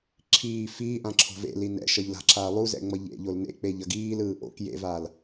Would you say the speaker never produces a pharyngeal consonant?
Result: yes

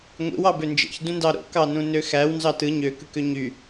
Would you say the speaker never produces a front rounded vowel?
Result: no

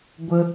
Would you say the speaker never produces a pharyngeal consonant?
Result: yes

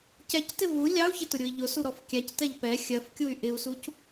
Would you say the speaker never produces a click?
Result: yes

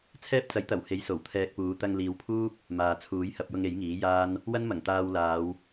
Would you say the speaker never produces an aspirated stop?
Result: no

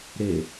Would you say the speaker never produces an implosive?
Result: yes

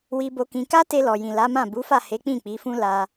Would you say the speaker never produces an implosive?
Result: yes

